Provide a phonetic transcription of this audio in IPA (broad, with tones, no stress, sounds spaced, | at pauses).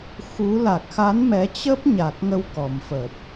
x u˨˦ l a˨˩ k̚ x a˨˦ n m ɛ˨˦ t͡ɕ ə˦˥ p̚ ɲ a˨˩ k̚ ŋ ə˧ w k ɔ˨˩ m f ə˨˩ p̚